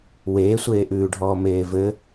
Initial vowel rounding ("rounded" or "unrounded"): unrounded